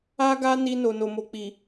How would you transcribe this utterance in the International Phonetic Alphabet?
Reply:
a˦ ɡ a˦ n i˧ n o˨ n o˨ m o˨ k͡p i˨

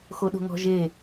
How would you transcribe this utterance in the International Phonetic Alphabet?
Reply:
x o ɗ o̤ ŋ ɔ̤ ʒ e

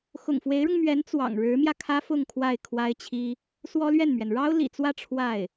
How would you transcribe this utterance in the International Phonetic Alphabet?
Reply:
x ʊ̰˨˩ ŋ f w e˧˥ ɪ̯ ɻ ʊ˧ ŋ m ɥ ɛ˧˥ n t͡s w ɑ̰˨˩ ŋ ɻ ɻ̩˧˥ m j ä˧ kʰ ä˥ f ʊ˥˧ ŋ kʰ w a˥˩ ɪ̯ kʰ w a˥ ɪ̯ t͡ɕʰ i˥ | s w ɔ˥ l ɥ ɛ˥˩ n m ɥ ɛ˩ n ɻ ɑ˥ ʊ̯ l ḭ˨˩ t͡s w ä˥˧ ʈ͡ʂʰ w a˥˩ ɪ̯

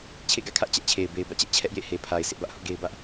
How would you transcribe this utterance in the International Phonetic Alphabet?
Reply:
t͡ɕʰ ḛ˦˨ ɡ ä̰˦˨ kʰ ä˦ ʔ t͡ɕ ɛ˦ ʔ t͡ɕʰ e˨ ɪ̯ b e˨ ɪ̯ b ä̰˦˨ t͡ɕ ɛ˦ ʔ t͡ɕʰ ɛ˦ ʔ j ḛ˦˨ h e˨ pʰ a˨ ɪ̯ sʰ ɪ˦ ʔ b ä˦ ʔ h ʊ˦ ʔ ɡ e˦ ɪ̯ b ä˦ ʔ

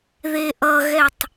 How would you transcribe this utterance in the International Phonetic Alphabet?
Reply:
ð e ʔ ʌ ɣ ɛ tˤ

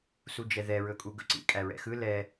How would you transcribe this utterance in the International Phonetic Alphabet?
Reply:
s u d͡ʒ ɛ ð ɛ ɹ ɵ kʼ u ɡ ɵ ǀ ḭ kʼ æ ɹ ɛ̰ x ɯ l ɛ

